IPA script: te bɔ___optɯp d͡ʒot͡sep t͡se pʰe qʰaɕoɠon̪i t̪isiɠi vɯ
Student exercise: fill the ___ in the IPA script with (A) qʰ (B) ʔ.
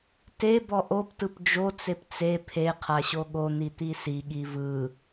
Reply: B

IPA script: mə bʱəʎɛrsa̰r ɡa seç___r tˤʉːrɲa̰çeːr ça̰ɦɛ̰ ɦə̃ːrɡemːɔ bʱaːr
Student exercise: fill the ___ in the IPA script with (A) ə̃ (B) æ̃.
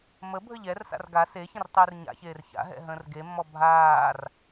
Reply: A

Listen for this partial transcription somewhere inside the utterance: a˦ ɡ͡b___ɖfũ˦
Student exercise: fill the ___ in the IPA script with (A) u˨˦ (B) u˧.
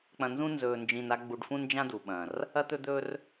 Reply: B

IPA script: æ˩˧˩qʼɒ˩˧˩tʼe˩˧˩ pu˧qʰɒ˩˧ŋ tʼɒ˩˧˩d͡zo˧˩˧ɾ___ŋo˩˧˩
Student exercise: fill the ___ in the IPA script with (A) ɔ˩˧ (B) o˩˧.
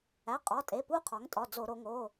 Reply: B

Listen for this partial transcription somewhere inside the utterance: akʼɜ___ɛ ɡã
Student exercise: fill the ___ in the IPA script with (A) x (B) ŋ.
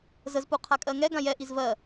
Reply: B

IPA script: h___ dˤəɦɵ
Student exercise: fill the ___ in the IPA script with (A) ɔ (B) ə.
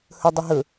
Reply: B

